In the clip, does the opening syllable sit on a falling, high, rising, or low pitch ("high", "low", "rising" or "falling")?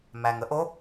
low